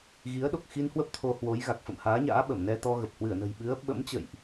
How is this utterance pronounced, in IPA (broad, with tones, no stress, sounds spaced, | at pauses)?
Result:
ɣ i˨˦ ə̯ ɗ o˨˩ k̚ x i˧ n h w ə˦˥ p̚ t̪ʰ o˧ h w o˨˦ j ɣ a˨˩ k̚ f ə̰˧˨ m h aː˨˦ ɲ a̰ː˧˥ ɓ ə˧˩ m n ɛ˧ t̪ ɔ˧ ɣ ə˨˩ p̚ h w ɨ˧˩ ə̯ n ə̤˨˩ j ɓ ɨ˨˦ ə̯ ɓ ə̰˧˥ m t͡ɕ ə̰˧˨ j ʔ